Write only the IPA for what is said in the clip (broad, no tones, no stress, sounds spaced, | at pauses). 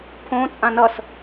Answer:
pʰ õ t͡sʼ ã n ʌ s